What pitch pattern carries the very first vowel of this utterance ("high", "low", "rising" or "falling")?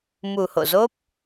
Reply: low